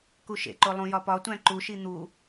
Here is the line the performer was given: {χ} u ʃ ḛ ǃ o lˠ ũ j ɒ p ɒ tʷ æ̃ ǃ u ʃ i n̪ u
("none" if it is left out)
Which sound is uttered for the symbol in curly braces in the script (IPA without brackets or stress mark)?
k